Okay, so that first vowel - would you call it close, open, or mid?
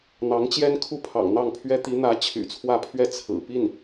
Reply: open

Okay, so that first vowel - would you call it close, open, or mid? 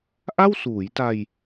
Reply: open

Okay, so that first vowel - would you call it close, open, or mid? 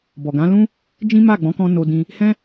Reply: mid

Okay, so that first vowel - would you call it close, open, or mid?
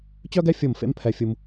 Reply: mid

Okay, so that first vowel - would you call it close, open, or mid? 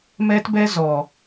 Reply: mid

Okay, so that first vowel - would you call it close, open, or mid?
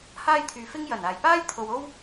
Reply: open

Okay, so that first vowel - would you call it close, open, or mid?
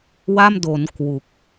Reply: open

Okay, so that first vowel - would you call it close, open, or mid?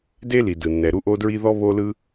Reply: mid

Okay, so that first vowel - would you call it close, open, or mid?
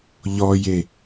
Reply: mid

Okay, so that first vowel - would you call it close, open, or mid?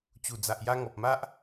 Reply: close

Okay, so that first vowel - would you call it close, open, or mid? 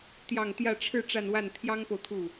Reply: open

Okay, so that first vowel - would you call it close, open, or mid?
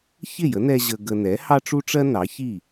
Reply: close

